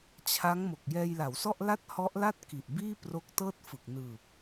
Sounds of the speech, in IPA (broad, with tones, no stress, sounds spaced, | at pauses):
t͡ɕʰ a˦˥ ŋ m o˨˩ k̚ j ɛː˧ j l a˩˦ w s ɔ˥˩ ʔ l a˥˩ t̚ h ɔ˦˥ ʔ l a˥˩ t̚ k i˨˩ ʔ b iː˥˩ p r o˦˥ k̚ t ɤː˥˩ t̚ f ɯ˨˩ k̚ n ɯː˨˩ p̚